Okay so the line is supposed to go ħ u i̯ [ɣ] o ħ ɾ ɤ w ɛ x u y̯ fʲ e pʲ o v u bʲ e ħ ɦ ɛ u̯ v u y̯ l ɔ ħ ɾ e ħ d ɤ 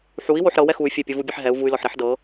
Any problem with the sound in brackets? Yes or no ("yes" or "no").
yes